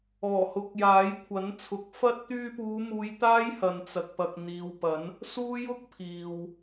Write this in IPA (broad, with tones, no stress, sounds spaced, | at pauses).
ɔː˨˩ h ʊ˨˥ k̚ j aː˨˥ j kʷʰ ɐ˨˥ n t͡sʰ ʊ˨˥ k̚ f ɐ˥ t̚ t̪ yː˧ p uː˨˧ m uː˨˧ j t̪ aː˥ j h ɐ˨ n t͡s ɐ˨ k̚ p ɐ˨ k̚ n̪ iː˨ w p ɐ˨˥ n | s uː˥ j ʊ˥ k̚ pʰ iː˨ w